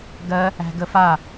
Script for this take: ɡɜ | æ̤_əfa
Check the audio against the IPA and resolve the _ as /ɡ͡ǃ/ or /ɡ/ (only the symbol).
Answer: ɡ